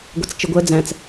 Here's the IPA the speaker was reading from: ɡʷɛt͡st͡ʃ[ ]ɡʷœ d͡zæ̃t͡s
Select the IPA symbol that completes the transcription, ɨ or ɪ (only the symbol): ɨ